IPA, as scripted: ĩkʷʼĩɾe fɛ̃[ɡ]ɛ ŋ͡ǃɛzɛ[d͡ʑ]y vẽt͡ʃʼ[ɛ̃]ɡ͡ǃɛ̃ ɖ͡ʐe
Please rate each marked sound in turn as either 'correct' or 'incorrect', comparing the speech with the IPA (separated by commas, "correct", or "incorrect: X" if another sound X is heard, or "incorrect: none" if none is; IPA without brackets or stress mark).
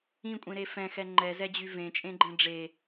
incorrect: x, correct, incorrect: ẽ